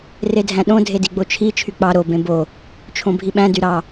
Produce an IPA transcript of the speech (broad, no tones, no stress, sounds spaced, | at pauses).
r e dʱ æ̃ ɗ õ dʱ e d i ɡ͡b o t͡ʃʰ i t͡ʃʰ y k͡p ɑ ɾ o b ẽ b o | t͡ʃʰ õ bʱ i ɓ æ̃ d y ɾ ɑ